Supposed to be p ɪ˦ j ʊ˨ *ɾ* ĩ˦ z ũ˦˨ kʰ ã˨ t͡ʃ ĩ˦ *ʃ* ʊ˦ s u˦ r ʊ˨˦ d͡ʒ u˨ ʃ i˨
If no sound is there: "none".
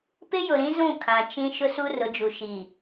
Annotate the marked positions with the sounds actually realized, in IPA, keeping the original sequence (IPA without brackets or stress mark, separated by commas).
ɾ, ʃ